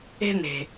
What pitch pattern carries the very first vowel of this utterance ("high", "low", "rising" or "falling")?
high